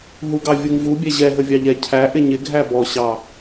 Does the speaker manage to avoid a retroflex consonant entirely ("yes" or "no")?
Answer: yes